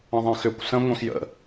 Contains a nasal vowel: yes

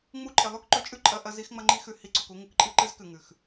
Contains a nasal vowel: no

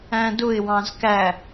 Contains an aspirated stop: no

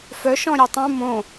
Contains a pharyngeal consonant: no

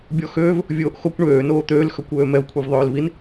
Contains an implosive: no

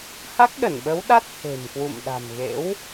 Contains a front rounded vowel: no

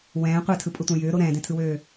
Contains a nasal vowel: yes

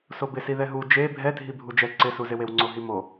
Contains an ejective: no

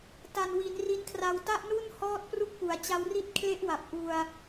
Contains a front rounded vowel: no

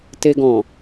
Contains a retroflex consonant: no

